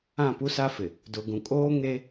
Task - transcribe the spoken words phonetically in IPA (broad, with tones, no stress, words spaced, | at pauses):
ã˦˨pu˦sa˦fɪ˨ | dʊ˨ɡũ˨kʼoː˦ ŋe˦